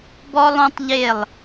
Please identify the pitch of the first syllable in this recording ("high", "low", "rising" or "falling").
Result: high